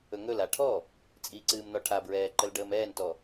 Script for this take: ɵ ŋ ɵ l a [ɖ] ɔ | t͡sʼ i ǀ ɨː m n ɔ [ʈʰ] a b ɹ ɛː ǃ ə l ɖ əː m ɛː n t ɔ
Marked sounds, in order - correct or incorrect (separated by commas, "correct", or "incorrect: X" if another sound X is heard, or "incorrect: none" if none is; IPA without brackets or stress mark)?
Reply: incorrect: ʈʰ, correct